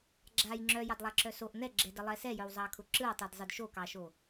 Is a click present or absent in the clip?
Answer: present